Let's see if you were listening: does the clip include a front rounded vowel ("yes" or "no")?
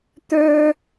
yes